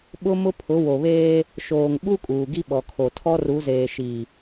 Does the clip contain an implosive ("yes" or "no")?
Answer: yes